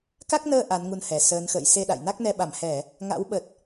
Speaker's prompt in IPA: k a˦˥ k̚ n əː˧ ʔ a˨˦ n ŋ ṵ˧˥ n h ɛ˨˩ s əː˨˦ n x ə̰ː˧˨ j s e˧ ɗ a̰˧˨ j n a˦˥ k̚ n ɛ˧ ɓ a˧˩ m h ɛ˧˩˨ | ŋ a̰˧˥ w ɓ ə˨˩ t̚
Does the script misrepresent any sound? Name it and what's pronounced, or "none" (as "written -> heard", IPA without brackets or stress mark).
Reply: ṵ˧˥ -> u˧